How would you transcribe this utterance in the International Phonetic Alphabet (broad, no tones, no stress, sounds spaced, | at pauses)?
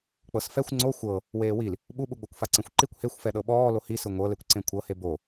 k͡p ɤ s f ɛ xʷ ŋ͡ǀ o xʷ ɤ | w eː w i l | ɓ u ɓ u ɡ͡b o kʷ f a ǀ ẽ xʷ ǃ i kʷ h e xʷ f ɛ ɗ ɤ ɓ ɔː l o h i s ɯ ŋʷ ɤ l e kʷ ǀ ẽ kʷʰ ɤ h e b o